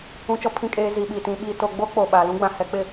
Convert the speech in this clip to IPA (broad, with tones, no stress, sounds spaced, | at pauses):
ũ˨ t͡ʃ ɔ˨ pʰ ĩ˨ kʼ eː˨ z i˨ ɓ i˨ t ĩ˨ ɓ i˨ t o˨ ɡ͡b o˦ k͡p o˨ ɓ aː˨ l ũ˦ ɡ͡b ã˨ h ɛ˨ k͡p ɪ˨